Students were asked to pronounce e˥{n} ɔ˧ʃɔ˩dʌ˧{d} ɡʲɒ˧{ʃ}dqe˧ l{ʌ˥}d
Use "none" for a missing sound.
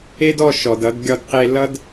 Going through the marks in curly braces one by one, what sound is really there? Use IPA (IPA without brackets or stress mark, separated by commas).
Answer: d, d, none, ʌ˥